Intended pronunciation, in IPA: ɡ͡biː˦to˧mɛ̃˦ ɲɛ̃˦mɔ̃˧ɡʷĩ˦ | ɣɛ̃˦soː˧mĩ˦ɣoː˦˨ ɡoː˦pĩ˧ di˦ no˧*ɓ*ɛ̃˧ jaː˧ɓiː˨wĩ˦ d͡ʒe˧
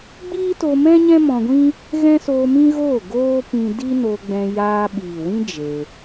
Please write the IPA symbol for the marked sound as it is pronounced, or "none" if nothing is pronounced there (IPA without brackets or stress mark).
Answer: ɡ͡b